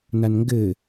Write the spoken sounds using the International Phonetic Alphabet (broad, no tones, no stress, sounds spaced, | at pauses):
n a n ŋ ɡ ɘ